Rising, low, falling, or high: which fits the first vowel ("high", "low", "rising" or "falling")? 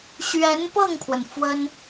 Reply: rising